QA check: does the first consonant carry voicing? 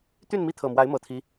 no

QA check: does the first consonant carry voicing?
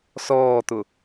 no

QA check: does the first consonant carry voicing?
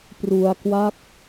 no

